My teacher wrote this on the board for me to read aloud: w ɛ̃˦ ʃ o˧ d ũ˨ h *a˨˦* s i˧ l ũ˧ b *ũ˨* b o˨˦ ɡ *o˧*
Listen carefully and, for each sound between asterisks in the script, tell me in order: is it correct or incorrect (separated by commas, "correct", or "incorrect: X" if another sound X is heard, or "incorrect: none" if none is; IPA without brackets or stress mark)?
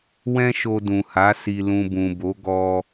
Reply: correct, correct, incorrect: ɔ˧